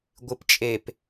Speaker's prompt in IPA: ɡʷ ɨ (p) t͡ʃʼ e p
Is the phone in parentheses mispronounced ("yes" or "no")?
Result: no